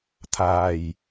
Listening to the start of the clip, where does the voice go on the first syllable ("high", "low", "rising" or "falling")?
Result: low